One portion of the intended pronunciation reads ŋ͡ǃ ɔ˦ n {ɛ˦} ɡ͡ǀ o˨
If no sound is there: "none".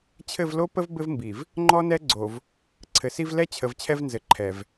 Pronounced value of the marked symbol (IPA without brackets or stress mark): ɛ˦